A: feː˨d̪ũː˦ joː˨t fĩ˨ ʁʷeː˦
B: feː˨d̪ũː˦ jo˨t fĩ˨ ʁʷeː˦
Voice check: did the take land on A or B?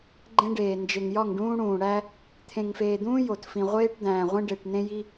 B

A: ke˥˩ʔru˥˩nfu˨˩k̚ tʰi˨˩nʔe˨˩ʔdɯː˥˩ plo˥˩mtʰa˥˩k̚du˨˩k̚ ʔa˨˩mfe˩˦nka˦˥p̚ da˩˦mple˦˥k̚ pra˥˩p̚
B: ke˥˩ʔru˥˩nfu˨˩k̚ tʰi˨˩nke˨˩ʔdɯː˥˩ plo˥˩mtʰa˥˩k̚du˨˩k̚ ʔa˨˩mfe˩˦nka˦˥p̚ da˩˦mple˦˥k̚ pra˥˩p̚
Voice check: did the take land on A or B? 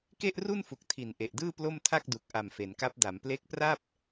A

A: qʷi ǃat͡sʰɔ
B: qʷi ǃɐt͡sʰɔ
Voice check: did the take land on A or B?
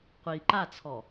A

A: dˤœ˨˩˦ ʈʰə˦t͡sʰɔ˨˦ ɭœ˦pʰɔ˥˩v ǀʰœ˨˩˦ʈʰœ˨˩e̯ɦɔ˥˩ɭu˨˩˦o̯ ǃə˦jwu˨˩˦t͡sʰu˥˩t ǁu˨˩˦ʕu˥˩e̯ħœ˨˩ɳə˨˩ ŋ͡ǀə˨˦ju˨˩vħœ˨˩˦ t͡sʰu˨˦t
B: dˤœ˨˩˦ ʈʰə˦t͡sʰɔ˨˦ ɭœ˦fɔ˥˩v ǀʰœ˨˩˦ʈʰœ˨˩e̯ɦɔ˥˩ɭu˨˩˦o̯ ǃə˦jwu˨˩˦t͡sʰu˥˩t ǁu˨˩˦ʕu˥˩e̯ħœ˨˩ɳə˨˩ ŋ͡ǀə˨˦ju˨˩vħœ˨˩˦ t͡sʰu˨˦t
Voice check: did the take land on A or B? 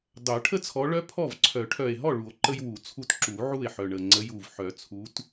A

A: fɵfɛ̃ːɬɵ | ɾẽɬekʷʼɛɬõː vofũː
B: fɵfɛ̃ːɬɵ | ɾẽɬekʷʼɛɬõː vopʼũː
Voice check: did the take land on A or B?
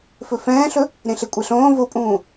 B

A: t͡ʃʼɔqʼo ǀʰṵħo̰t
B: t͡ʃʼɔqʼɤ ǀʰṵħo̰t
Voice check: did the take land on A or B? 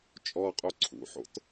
A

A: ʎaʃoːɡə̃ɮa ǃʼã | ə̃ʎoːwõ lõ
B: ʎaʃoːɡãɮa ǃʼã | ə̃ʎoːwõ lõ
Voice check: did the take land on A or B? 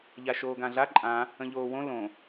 B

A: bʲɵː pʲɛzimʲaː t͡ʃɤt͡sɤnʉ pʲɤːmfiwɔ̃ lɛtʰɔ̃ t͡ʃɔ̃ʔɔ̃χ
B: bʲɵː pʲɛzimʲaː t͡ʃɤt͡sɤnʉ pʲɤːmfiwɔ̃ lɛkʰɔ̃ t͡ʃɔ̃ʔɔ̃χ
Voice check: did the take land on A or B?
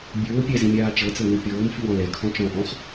B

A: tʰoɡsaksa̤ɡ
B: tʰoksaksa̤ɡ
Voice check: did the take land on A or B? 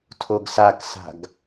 A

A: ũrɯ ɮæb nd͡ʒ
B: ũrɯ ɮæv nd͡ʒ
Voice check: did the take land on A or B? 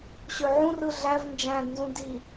B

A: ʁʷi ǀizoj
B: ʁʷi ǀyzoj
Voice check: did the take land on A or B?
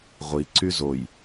B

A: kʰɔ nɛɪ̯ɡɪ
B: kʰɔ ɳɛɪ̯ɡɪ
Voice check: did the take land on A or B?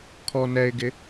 A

